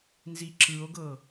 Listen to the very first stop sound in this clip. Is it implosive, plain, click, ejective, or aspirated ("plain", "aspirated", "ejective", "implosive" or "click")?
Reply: click